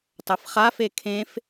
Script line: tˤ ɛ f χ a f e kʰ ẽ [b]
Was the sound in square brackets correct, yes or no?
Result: no